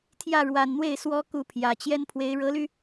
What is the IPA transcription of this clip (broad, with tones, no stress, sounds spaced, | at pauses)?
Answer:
t̪ʰ j ä˥˩ ɻ w a˨˩ n n̪ w e˥˩ ɪ̯ s w ɔ˥ k u˥˩ pʰ j ä˨˩ t͡ɕ j ɛ˥ n pʰ w e˧˥ ɪ̯ ɻ ɤ˧˥ l y˧